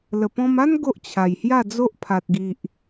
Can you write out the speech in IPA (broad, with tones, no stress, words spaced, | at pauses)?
lə˨˩pɔ̃˧ma˦n ɡo˦ʔt͡ɕʰa˨˩jhja˥˧d͡zo˦ʔ pʰa˨t̚ɡi˨ʔ